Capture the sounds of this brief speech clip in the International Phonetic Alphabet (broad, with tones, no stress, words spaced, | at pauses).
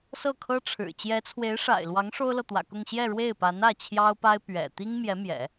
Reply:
sɤ˥˩kʰɤ˥ʈ͡ʂʰɻ̩˨˩ t͡ɕjɛ˧˥t͡sʰwe˧˥ɪ̯ʂa̰˨˩ɪ̯lwɑ˧˥ŋ ʂo˥ʊ̯lɤ˨t̪wä̰˨˩kʊ˥˧ŋ ɕjɛ˥˧ɻwe˥˩ɪ̯pa˧˥nä˥˩ t͡ɕʰjɑ˥ʊ̯pa˥ɪ̯ pɥɛ̰˨˩ t̪i˥ŋmjɛ˧˥mjɛ̰˨˩˦